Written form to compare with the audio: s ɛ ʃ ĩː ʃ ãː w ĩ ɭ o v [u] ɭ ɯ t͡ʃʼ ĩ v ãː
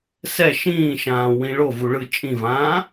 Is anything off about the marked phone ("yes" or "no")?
no